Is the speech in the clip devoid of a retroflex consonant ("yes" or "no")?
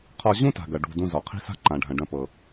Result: no